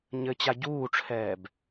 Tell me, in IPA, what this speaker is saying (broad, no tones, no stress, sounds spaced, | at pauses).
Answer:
ɲ ɘ t͡ɕ a ɟ uː ʈ͡ʂʰ ɛː b